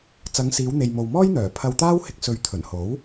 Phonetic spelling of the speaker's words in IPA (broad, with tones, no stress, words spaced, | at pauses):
t͡sɐ˨˧ŋsiː˨˧wn̪e˨j mo˨wmɔː˥jn̪œː˨˩ pʰɐ˧wt̪aː˥whɪ˧k̚ sɵ˧ɥ t̪ʰɵ˨˩n ho˨˥w